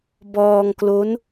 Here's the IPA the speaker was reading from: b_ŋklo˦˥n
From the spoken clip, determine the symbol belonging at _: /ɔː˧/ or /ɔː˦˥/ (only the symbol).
ɔː˧